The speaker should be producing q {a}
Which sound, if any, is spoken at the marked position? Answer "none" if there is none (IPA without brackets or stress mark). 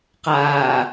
aː